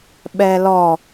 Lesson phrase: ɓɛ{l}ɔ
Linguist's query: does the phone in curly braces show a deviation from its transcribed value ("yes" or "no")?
no